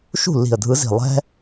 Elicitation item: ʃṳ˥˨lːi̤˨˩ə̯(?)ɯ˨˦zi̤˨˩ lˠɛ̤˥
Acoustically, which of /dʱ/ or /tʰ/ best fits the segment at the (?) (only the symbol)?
dʱ